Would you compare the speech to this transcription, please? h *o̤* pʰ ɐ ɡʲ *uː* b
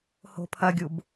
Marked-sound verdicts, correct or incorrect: correct, incorrect

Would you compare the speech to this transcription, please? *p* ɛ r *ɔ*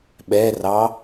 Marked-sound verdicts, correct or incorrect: incorrect, incorrect

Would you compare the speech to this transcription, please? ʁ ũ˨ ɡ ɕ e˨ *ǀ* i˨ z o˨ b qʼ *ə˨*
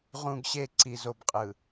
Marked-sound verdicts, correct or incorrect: correct, incorrect

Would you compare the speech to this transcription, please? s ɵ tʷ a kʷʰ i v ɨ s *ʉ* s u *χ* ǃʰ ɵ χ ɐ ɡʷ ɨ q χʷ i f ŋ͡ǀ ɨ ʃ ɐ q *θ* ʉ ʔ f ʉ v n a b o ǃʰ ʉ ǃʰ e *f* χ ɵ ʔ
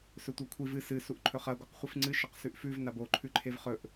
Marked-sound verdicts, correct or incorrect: incorrect, incorrect, incorrect, incorrect

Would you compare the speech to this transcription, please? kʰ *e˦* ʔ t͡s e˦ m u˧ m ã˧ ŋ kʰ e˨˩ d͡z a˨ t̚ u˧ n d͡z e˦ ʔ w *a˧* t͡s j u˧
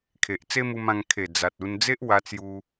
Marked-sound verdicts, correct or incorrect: incorrect, correct

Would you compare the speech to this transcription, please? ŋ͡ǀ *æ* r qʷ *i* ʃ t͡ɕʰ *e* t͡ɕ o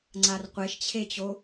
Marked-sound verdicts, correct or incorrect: incorrect, incorrect, correct

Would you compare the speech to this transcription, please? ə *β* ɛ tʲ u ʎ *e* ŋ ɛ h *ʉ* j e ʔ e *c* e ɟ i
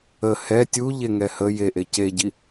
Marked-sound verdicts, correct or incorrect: incorrect, correct, incorrect, correct

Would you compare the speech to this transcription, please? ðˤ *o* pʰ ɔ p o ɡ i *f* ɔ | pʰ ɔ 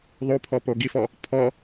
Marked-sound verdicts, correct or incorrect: correct, correct

